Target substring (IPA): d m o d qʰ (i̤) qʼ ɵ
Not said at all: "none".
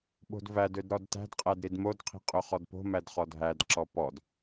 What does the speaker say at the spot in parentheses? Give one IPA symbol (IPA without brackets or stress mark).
i̤